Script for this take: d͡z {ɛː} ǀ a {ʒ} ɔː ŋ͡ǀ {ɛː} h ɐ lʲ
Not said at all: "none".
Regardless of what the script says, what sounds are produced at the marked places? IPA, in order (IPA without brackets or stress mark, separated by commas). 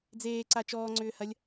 eː, t͡ʃ, ʏː